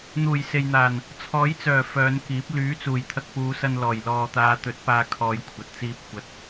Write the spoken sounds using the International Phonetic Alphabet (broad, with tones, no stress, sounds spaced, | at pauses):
n̪ uː˨˩ j s e˨ j n̪ aː˨˩ n | t͡sʰ ɔː˨˥ j t͡s œː˨˩ f œː˨˧ n k iː˨˥ p̚ l yː˨˥ t͡s uː˨˩ j t̪ʰ ɐ˧ k̚ p uː˨˧ s ɐ˧ n l ɔː˨˩ j l ɔː˨ t̪ aː˨˧ t̪ ɵ˨˥ t̚ p aː˥ kʰ ɔː˧ j kʷʰ ɐ˨ t̚ t͡s iː˧ p̚ kʷ ɐ˨ t̚